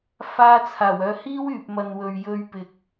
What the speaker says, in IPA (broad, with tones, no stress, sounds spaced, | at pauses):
f aː˧ t͡sʰ aː˨˩ w œː˨ h iː˥ w yː˨ p̚ m ɐ˨ n w ɵ˨ ɥ j ɵ˧ ɥ p ɪ˨ k̚